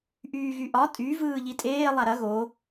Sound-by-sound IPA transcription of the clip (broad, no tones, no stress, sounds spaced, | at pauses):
ʔ yː ɣ y ʔ ɒ tʼ y v ɯː ʎ i tʼ eː lˠ a ɾ ɐ ɣ o